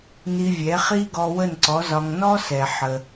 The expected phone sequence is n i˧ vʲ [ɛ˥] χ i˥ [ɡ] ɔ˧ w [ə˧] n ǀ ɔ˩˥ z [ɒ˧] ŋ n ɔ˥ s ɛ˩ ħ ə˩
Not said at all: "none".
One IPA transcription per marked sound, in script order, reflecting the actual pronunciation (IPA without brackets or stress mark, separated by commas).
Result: ɛ˩˥, ɡ, ə˥˩, ɒ˧